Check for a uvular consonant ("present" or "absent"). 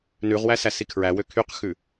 present